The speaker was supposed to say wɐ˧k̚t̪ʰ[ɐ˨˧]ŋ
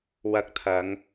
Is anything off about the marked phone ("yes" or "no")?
no